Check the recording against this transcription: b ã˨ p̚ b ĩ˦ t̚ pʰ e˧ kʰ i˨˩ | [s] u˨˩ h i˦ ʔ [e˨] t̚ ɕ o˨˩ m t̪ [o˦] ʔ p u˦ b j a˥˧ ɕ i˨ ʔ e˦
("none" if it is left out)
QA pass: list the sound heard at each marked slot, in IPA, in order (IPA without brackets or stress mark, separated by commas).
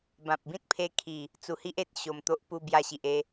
t͡s, e˨, o˦